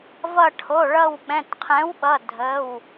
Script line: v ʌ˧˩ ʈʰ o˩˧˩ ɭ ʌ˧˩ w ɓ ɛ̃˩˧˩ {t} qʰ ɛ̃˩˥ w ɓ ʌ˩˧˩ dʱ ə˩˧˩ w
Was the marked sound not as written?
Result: no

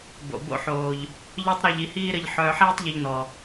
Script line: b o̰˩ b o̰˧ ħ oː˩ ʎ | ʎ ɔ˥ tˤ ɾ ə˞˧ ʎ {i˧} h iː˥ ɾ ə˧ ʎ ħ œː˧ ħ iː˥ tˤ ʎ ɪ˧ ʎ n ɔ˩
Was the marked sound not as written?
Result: no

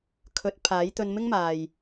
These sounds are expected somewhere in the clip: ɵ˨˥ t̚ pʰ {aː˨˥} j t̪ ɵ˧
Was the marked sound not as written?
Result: no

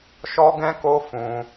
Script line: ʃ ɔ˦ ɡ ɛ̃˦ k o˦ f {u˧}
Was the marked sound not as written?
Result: yes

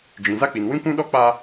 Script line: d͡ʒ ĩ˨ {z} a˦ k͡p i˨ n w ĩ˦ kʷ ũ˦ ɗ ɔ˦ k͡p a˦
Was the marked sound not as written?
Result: no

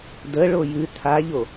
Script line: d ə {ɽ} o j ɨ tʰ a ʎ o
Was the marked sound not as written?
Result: yes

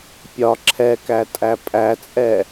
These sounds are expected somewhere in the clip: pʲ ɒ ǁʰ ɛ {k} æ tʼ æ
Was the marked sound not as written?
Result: no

